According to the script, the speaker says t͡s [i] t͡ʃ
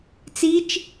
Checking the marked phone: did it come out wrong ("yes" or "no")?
no